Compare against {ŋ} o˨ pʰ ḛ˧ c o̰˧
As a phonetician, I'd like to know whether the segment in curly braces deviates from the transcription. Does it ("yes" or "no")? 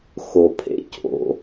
yes